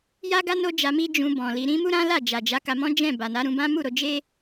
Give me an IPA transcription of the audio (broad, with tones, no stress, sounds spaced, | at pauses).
j a˦ ɡ a˦ n o˦ d͡ʒ a˧ m i˦ d͡ʒ ũ˧ b ɔ̃˨ l i˧ ɾ ĩ˦ m u˦ ɾ ã˦ l a˦˨ d͡ʒ a˨ d͡ʒ a˨˦ k a˧ m ɔ̃˦ d͡ʒ ɛ̃˦˨ b a˨ n a˨˦ ɾ ũ˧ b ã˦ m u˦˨ ɾ o˧ d͡ʒ e˦